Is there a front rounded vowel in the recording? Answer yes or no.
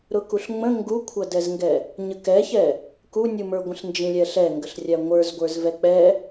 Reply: no